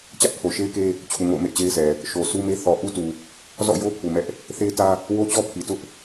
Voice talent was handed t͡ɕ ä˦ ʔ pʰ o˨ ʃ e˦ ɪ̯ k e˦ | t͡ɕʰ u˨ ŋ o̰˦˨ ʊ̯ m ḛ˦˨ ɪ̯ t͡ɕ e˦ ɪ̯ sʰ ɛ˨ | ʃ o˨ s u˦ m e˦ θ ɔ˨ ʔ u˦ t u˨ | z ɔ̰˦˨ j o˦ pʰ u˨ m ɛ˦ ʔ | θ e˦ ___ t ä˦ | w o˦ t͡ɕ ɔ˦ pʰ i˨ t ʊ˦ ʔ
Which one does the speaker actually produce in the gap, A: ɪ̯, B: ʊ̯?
A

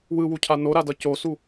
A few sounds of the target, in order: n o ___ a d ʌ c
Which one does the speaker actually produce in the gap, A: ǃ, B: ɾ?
B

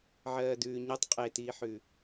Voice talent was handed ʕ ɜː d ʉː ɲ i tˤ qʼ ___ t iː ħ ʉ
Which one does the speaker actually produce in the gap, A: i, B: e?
B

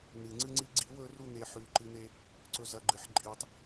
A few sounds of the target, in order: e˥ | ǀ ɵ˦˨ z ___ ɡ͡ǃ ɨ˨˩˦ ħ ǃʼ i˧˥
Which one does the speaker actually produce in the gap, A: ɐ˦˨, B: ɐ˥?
A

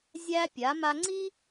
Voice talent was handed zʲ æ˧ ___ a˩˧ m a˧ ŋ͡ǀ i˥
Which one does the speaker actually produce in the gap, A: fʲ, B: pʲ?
B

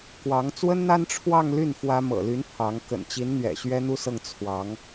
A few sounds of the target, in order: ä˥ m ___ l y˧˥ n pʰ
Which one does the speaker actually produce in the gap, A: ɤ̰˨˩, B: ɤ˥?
A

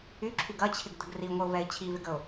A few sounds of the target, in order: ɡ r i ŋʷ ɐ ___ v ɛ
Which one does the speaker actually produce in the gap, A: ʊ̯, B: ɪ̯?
A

